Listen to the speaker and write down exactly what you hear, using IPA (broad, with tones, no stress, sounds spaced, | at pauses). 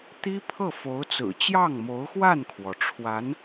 t̪ i˥ pʰ ɤ˥˩ f o˧˥ ʊ̯ t͡s ɹ̩˨˩ t͡ɕ j ɑ˥˩ ŋ m o˧˥ ʊ̯ x w a˥˩ n kʰ w ɔ˩ ʈ͡ʂʰ w a˧˥ n